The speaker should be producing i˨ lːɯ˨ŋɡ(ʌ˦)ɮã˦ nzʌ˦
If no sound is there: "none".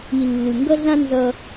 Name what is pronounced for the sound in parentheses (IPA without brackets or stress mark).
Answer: ʌ˦